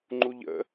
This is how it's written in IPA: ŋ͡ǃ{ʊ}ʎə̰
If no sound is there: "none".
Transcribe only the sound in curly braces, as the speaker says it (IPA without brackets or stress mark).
u